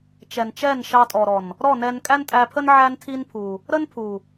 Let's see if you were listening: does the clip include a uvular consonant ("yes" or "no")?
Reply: no